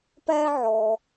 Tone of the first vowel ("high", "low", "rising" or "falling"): high